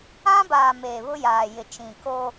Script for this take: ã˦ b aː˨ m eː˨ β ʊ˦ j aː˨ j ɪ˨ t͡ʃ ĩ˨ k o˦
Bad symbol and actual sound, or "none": none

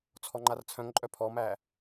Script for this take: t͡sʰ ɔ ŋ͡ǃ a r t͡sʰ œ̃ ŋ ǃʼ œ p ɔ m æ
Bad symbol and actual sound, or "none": p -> pʰ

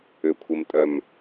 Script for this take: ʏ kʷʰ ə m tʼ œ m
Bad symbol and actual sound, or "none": none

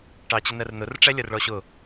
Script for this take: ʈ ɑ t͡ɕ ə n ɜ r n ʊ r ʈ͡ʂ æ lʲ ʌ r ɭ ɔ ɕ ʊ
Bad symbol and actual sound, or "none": none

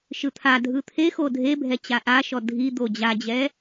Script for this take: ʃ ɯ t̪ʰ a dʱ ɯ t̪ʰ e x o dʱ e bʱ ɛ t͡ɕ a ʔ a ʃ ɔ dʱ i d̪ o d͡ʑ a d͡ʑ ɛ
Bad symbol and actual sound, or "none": none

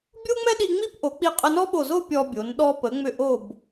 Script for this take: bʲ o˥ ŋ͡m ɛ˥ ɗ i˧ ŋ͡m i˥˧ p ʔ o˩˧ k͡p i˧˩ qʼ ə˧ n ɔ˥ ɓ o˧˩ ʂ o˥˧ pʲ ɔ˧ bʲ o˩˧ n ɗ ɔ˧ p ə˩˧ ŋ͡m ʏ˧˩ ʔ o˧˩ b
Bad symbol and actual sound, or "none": ʂ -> z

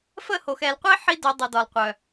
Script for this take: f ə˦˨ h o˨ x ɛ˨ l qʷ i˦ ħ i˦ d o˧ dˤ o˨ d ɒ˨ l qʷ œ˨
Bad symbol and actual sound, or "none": none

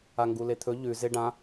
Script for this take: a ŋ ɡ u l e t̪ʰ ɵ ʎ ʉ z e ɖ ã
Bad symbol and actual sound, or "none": none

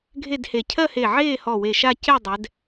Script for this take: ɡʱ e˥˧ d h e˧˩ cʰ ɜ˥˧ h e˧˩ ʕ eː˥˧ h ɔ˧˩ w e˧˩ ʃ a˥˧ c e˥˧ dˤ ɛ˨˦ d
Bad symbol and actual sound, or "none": none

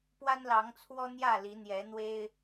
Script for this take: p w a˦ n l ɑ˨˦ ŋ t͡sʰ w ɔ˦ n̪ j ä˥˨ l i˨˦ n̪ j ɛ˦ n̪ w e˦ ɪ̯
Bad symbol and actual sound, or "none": ɛ˦ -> ɛ˨˦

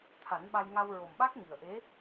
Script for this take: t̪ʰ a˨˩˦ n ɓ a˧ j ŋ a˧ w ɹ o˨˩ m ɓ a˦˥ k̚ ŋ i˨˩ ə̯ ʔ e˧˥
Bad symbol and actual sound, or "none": none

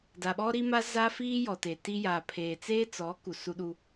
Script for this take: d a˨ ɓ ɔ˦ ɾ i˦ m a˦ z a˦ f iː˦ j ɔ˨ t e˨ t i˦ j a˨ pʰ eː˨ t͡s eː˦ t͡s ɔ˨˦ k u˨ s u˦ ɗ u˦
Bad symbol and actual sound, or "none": none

